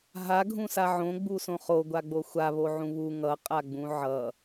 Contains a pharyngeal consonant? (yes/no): yes